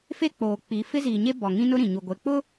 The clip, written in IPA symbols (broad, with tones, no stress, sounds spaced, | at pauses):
f e˦ k͡p oː˨ k͡p i˨˦ f ɪ˦ z iː˨ ɲ e˦ b ɔ˨ ŋ ĩ˦ n ʊ˦ ɾ ĩ˨ ɲ u˨ ɡʷ e˨ k͡p ʊ˦